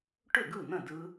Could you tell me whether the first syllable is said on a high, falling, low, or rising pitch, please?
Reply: falling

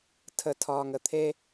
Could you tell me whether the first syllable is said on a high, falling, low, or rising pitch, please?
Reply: high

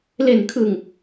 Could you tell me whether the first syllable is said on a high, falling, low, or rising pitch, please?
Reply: low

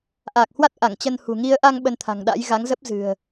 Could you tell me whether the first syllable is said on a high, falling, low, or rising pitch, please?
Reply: low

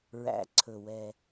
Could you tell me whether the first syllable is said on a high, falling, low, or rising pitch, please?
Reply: low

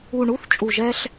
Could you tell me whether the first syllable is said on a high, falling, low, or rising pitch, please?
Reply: low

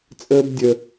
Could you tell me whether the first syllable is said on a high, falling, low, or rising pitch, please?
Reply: high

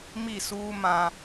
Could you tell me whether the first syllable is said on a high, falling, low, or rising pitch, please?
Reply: falling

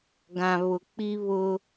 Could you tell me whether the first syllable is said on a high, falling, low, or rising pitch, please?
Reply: low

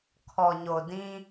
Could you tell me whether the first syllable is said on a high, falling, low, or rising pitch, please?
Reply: low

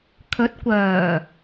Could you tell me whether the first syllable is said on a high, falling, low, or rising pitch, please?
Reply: rising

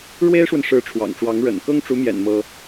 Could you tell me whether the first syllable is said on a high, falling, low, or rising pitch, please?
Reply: high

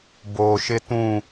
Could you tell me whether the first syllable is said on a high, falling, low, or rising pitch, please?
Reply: low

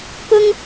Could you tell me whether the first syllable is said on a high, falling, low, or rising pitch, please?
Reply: high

